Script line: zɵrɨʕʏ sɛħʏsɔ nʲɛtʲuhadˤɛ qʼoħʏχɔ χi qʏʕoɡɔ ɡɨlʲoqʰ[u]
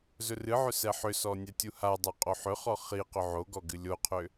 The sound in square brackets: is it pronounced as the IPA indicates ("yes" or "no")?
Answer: no